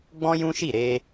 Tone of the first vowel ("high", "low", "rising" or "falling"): high